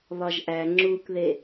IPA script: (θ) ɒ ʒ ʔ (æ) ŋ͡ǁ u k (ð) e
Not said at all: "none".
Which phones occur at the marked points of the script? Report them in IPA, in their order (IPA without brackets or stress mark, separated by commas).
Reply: β, æ, ð